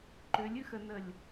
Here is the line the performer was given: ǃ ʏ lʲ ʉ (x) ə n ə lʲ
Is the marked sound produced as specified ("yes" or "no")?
yes